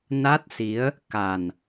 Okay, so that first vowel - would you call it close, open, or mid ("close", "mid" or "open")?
open